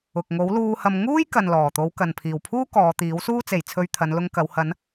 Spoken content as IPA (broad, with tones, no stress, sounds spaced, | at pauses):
ʊ˨ k̚ ŋ o˨˥ w l uː˧ h ɐ˧ m ŋ uː˥ j k ɐ˨ n l ɔː˨˩ t̪ o˨˧ w k ɐ˨ n pʰ iː˨˩ w pʰ uː˥ k ɔː˨˧ t̪ iː˨˥ w s uː˥ t͡s e˨ j t͡sʰ ɵ˧ ɥ t̪ʰ ɐ˨˧ n l ʊ˧ ŋ k ɐ˨˧ w h ɐ˨˧ n